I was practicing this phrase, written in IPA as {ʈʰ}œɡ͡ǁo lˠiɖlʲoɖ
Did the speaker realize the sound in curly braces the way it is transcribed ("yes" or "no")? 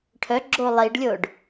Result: yes